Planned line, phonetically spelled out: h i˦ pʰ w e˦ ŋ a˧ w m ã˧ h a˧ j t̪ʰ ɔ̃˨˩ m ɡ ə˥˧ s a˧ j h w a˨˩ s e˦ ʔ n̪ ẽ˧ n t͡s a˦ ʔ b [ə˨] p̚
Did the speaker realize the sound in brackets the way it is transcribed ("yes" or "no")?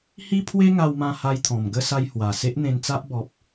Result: no